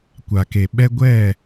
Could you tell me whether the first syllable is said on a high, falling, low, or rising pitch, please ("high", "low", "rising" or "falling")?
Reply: low